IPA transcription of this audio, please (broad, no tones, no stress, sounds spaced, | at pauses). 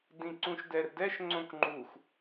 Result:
d ĩ ǀ ũ ʃ d ɛ r d ɛ ʃ ŋ͡ǀ õ k ŋ͡ǃ u x